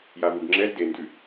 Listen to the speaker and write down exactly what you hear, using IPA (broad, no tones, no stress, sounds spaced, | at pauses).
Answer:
j a v u ɡ ŋ͡ǁ ɛ z d e n d ʉ